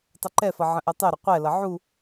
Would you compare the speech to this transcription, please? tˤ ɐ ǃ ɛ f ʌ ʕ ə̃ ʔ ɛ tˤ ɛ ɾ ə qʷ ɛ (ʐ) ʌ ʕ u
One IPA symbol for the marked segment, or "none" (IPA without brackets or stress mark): l